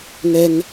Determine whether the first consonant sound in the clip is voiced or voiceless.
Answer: voiced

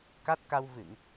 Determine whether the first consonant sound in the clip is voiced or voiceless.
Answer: voiceless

